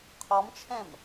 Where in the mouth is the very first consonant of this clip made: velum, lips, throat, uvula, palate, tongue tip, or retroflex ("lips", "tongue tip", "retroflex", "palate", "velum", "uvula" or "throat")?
uvula